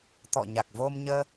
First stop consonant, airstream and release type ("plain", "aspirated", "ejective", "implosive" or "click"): plain